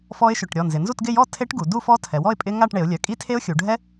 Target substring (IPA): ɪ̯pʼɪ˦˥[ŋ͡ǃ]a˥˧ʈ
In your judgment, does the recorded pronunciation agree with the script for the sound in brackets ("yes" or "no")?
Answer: no